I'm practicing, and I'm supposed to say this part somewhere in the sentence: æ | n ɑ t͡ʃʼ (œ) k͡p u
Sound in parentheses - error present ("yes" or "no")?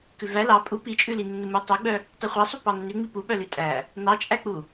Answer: yes